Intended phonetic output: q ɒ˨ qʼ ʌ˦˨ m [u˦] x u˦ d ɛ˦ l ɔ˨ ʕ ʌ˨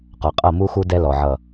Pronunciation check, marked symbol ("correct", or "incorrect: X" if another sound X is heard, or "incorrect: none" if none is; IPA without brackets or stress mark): correct